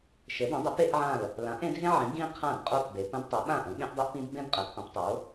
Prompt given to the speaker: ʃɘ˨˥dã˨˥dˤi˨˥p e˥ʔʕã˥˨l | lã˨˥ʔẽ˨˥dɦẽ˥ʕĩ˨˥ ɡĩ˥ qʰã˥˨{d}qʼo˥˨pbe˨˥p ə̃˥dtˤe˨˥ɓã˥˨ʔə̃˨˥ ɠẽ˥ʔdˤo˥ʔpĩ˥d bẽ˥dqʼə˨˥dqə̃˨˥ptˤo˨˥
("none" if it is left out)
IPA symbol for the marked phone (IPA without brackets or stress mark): d